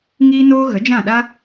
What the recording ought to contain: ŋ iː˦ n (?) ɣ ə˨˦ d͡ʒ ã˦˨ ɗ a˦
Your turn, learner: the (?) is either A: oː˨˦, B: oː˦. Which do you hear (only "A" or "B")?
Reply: B